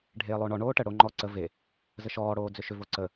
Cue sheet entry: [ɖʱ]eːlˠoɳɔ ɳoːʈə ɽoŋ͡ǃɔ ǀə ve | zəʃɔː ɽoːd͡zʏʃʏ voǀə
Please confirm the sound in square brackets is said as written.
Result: yes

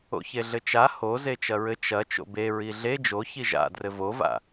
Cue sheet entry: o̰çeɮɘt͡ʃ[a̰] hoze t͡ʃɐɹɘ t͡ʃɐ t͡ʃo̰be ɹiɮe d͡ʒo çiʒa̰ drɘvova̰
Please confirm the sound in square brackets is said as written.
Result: no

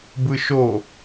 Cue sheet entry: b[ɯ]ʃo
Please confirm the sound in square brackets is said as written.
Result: yes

